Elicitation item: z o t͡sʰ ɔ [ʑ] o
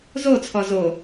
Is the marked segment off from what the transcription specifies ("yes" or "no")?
yes